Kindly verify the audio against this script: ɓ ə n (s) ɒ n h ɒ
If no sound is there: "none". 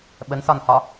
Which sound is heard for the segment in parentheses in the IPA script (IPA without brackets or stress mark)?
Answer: s